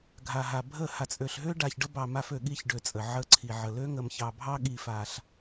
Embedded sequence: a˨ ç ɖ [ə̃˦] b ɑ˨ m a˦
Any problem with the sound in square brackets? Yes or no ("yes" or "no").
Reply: yes